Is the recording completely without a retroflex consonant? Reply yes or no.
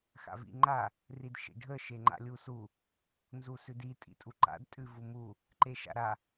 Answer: no